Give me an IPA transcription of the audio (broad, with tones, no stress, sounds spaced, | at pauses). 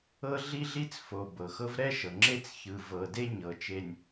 ɤ˦ ɮ i˦ ɮ i˦ t͡s f o˨ b ɤ˨ x ɤ˦ v ɾ ɛ˦ ʃ ɤ˨ ŋ͡ǁ e˦ t͡s ç ɯ˨ v ɤ˨ d e˦ ɲ ɤ˨ t͡ʃ e˨ nʲ